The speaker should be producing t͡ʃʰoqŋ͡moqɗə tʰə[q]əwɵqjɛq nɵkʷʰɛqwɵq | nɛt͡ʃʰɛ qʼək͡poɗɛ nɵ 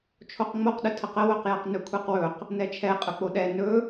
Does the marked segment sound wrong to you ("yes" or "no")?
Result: no